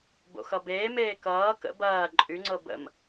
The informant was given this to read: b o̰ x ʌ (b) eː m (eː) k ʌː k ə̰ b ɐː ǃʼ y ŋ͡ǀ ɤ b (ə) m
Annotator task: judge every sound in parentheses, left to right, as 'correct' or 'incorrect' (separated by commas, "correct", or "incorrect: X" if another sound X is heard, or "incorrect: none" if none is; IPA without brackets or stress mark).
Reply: correct, correct, incorrect: ə̰